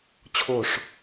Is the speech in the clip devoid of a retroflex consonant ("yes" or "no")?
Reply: no